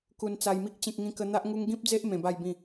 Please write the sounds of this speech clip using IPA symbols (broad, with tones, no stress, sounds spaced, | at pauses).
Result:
k u˧ n t͡s a˧ j m i˦ k̚ t͡ɕ ẽ˦ k̚ ŋ ĩ˦ k ə˦ n̪ a˦ ʔ ŋ u˦ ŋ ɡ ĩ˦ p̚ d͡z e˦ ʔ m ẽ˧ b a˥˧ j b ĩ˥˧